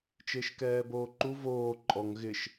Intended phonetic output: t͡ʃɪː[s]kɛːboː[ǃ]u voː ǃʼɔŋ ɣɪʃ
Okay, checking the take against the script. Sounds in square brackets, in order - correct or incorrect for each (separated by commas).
incorrect, correct